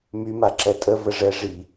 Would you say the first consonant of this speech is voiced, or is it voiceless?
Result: voiced